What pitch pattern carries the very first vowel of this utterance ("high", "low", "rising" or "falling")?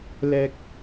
high